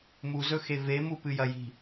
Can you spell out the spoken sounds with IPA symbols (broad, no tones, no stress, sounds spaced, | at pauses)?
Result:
m u z ɵ x e v e m u p ɨ j ɐ j i̤